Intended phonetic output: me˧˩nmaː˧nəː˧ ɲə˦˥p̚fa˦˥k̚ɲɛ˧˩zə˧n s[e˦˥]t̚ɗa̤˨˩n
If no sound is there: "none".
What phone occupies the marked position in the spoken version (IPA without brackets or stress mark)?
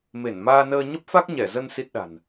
i˦˥